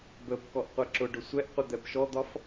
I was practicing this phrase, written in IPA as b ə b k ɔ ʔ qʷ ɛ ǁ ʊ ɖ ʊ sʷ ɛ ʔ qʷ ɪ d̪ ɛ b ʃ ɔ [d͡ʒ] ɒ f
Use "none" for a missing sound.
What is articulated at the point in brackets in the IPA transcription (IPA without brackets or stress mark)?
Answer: d̪